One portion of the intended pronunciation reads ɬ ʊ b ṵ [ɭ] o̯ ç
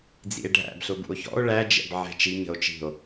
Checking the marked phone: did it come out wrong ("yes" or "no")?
yes